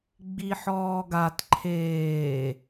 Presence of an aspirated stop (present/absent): present